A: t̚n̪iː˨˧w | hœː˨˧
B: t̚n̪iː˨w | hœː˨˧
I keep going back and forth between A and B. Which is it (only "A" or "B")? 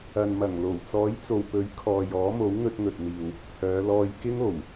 B